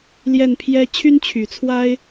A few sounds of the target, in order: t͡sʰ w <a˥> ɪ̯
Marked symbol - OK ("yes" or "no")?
yes